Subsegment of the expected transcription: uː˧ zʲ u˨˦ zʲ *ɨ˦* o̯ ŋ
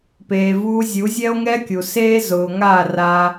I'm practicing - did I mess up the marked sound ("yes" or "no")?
yes